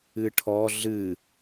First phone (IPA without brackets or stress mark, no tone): ɨ